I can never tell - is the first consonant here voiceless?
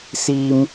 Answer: yes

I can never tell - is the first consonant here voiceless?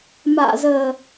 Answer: no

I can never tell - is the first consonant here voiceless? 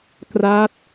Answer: yes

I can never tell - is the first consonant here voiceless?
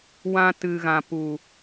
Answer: no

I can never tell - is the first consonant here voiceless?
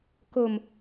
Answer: yes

